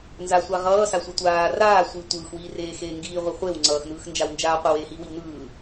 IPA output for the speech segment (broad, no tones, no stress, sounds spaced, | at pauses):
n z a sʷ a ʁ ʌː s a sʷ e tʷ aː r aː sʷ i tʷ ɯː x w iː r eː x eː ŋ ɡ iː ʁʷ i χʷ e w ŋ͡ǀ ʌː x n ɯː x n d͡ʒ a w n d͡ʒ aː qʷ i w eː h iː w i w n ɯː